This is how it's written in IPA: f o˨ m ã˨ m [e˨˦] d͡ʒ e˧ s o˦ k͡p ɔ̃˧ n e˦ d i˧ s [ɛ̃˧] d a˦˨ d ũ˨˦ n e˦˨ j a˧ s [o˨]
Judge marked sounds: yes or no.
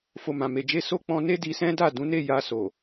no, no, yes

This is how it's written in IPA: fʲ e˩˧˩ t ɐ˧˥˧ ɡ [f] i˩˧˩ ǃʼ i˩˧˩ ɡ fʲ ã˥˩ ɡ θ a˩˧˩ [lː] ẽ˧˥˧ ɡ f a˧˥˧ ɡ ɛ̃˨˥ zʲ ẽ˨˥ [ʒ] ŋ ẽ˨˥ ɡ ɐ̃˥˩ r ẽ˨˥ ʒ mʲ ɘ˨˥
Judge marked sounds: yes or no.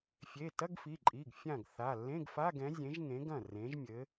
yes, yes, yes

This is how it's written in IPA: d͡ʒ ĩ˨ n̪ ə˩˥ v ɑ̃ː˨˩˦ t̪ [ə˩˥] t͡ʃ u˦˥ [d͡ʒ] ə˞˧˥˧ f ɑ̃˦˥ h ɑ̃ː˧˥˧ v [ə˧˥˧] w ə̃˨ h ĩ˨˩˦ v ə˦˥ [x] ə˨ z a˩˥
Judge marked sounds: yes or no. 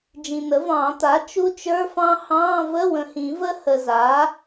no, no, yes, no

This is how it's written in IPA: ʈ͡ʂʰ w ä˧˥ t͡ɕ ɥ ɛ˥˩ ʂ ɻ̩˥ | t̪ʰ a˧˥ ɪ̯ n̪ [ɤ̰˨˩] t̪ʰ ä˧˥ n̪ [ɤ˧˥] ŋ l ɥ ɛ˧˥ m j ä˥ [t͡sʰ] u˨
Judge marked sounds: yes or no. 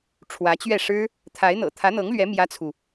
yes, yes, yes

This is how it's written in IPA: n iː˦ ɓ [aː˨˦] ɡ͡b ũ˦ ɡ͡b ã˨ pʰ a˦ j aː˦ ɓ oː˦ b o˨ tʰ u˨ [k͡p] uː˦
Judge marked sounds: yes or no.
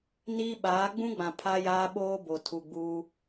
yes, no

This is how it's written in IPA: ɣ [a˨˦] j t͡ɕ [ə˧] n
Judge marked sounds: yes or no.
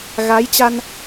yes, no

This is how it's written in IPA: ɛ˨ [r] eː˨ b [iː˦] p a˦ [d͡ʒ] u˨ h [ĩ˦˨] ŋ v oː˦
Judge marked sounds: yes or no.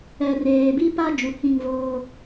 yes, no, yes, yes

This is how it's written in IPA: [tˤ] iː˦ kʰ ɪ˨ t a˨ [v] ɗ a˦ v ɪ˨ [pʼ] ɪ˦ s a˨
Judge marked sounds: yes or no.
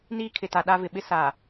no, no, no

